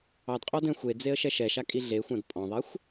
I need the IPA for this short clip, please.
ɑ d qʼ ɔ d ɛ̃ xʷ e d͡z e ə̯ ʃ ɛ ʃ ɛ ʃ a kʼ i ɮ e xʷ ã d pʼ ɔ̃ ðˤ ɛ xʷ

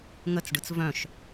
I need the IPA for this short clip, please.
ŋ ə t͡s ɖ ɯ t͡s v œ̃ ʃ

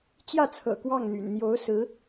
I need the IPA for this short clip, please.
t͡ɕ j ä˥˩ t͡sʰ ɤ̰˨˩ k w ɑ˥˩ ŋ n̪ y̰˨˩ n n̪ j o˧˥ ʊ̯ s ɹ̩˧˥

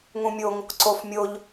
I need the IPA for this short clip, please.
ŋ ũ mʲ o ŋ | ǀ o f mʲ o ʎ

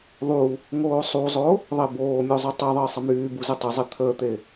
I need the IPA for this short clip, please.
ðˤ u | ŋ oː sˤ u zˤ o | ðˤ e b oː mʲ o zˤ y tˤ e ðˤ əː sˤ ə m yː b u z ə tˤ i zˤ i t̪ʰ əː t̪ e

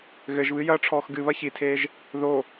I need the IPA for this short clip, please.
ɣ ɘ ʒ β ɨ j ɐː ʈ͡ʂʰ ɔː x ɡ ɨ β ɐ ç i tʰ eː ʒ | ð o

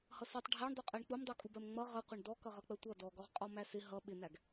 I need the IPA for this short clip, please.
h ʌ s ɔ tˤ ɖʱ æ ɳ dˤ u qʼ ɜ ɳ k͡p u m dˤ u kʼ u b ɜ m ŋ͡m ʌ ʁ ʌ qʷ ʌ ɳ d ɔ k ʌ ʁ ʌ k͡p ɜ tʷ ʌ d ɔ ɡ ɔ ʁ qʼ ɔ m æ s ɪ ɦ ʌ ɓ ɪ n æ ɡ

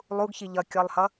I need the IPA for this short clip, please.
lˠ u ɡ ç i ʎ ʌ kʲ ɔ lˠ h ʌ

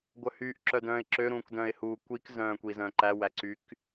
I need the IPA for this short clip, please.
ɡʷ œ h y ʔ ǁ œ d œ̃ː ɪ̯ ǁ ø ɾ ũː k d œ̃ː ɪ̯ h uː kʷ i k z œ̃ː kʷ i z œ̃ː ǃ æ w æ ǀ y k

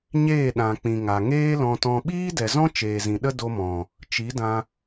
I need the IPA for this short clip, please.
ɲ eː˦˨ ɗ ã˨ k͡p ĩ˨ ŋ a˨ ŋ eː˦ l ɔ̃˧ t ɔ̃˧ ɓ iː˦ d ɛ˨ z ɔ̃˦ t͡ʃ eː˨ z ĩ˨ ɗ ə˦ d o˧ m ɔ̃˨ | t͡ʃ i˨˦ d ã˧

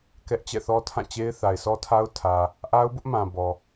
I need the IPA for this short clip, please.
k ɛ˦ ʔ t͡ɕ ɛ̰˦˨ θ ɔ˦ tʰ ã˦˨ t͡ɕ e˦ ɪ̯ θ a˨ ɪ̯ s ɔ˦ tʰ a˦ ʊ̯ tʰ ä˨ | ʔ a˦ ʊ̯ b ʊ˦ ʔ m ã˨ b ɔ˨

